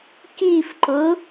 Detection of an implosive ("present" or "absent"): absent